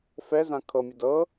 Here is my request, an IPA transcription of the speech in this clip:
f ɛ z ã kʰ ɤ mʲ ɐ d ɤ

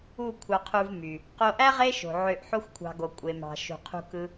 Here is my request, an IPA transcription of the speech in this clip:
u˦˨ kʷʰ ɑ˧ qʰ u˧ v m y˨ | q o˧ ʔ æ˦ ʁ e˦ ʃ o̤˨ ʕ ø˧ ʔ ħ o˦ xʷ kʷʰ ɑ̤˧ ɡ o˨ kʷʼ e˨ m ɑ̤˨ ʃ ṳ˨ qʰ ṳ˧ k ɯ˧

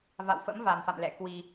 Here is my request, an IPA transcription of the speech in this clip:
v a̰˧˨ w f ə̰˧˥ m v a˨˩ m f a̰˧˨ m l ɛ̰˧˨ k w i˧

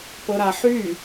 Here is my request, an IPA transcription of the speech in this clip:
p ɤ ɾ a ħ y

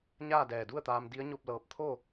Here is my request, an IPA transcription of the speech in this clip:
ɲ aː˥˨ d ɛː˧˩ d u˥˨ ə̯ t̪ aː˧ m d i˧˥ ə̯ ɲ o˥˨ p̚ l ɤː˧ p̚ t̪ʰ o˥˨

